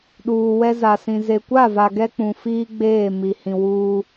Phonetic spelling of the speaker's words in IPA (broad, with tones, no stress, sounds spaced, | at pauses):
ɗ uː˨ w ɛ˦ z a˨ s ĩ˨ z e˨ kʷ a˦˨ v a˨ ɡ ɛ˦ k͡p ũ˨ f iː˦ ɡ͡b eː˦˨ m i˨ h ĩ˨ w uː˦